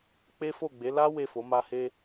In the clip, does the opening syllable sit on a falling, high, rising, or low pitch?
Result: high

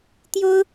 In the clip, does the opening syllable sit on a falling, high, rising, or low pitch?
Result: high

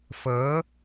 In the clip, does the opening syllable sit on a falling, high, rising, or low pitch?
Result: rising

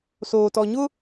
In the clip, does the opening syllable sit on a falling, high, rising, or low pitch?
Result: low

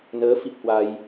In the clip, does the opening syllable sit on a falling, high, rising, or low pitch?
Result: rising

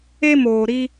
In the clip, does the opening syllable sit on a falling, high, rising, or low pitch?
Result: high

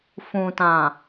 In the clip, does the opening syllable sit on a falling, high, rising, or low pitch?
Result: low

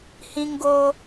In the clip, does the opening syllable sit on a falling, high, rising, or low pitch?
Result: high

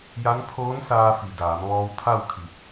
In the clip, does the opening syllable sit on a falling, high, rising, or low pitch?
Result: rising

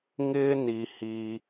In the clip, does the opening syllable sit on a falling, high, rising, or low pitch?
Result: high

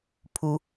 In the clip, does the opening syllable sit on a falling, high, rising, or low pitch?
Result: high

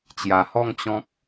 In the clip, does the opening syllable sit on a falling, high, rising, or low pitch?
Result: low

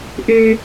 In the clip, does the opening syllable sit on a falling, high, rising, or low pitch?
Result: high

